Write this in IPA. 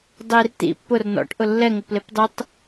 dˤ i r t̪ ḭ pː ʊ r n ɔ̰ ʈ ʔ ʊ lː ɛ ŋ ʊ p l e p dˤ ɯ tˤ

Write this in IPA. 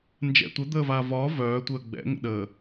n d͡ʒ ɛ̰ tʷ ə d̪ əː v aː v ɒː v œː tʷ əː ɡ͡b ɛ̰ ŋ ə̰ ɗ əː

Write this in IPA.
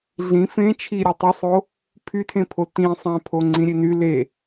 ɮ ĩ f ẽ t͡ʃʰ i ɾʲ ɯ tˤ u sˤ o | pʰ y tʰ ẽ pʰ o t ĩ sˤ æ̃ pʰ o ŋ͡ǀ ĩ ɾʲ e n y l e

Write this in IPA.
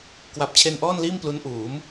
k w a˨˩ p̚ t͡ɕʰ e˧ n ʔ ɔː˥˩ n l iː˥˩ m p l u˦˥ n ʔ uː˩˦ m

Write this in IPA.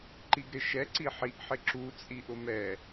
ǃ i ɡ ɾ ɪ ʃ ɛ ǀ i ħ i ʔ ħ ɪ ǁ u t͡sʼ i ʔ ʊ m ɛ

